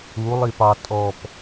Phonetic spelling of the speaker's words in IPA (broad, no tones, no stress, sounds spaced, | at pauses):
u lˠ i p ɑ tʼ ɔ p